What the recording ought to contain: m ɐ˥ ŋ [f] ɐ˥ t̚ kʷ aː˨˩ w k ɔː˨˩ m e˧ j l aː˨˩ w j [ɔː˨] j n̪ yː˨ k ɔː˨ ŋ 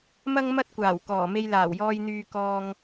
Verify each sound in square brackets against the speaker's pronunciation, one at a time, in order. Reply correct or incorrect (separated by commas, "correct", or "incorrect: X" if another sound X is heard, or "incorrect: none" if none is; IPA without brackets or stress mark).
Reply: incorrect: m, incorrect: ɔː˧